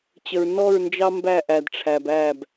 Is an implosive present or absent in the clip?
absent